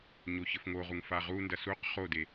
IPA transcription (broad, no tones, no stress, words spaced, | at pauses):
ɲoçɘfŋoʁuŋ faʁundɐ suq χode